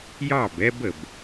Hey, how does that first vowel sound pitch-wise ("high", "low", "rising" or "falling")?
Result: falling